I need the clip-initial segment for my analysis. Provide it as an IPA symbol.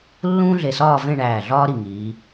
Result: lː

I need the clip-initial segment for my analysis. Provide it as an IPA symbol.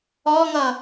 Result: ɔ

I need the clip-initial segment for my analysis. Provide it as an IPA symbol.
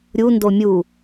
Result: ɾʲ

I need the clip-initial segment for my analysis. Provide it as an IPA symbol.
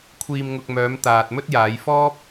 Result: kʷʰ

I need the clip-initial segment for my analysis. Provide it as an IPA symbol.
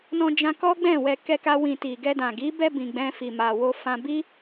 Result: n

